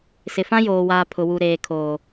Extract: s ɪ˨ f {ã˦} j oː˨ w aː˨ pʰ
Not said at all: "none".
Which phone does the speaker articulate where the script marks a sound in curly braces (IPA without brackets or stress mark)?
ã˦